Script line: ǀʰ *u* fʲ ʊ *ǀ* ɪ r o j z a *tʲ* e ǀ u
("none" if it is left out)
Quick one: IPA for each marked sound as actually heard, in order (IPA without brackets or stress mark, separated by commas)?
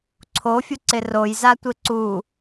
o, ǀ, tʷ